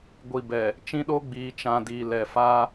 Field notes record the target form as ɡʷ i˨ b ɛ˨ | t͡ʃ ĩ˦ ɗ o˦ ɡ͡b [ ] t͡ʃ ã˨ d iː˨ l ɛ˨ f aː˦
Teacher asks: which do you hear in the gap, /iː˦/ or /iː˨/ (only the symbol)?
iː˨